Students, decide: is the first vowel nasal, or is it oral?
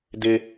oral